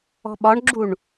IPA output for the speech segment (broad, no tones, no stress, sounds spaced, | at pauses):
ɔ̤ ɓ ɒ ɳ ɡ͡ǁ u ɳ